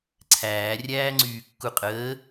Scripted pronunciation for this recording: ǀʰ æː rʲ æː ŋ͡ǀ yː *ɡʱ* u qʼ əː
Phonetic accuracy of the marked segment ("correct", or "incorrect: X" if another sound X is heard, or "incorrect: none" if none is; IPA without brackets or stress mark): incorrect: kː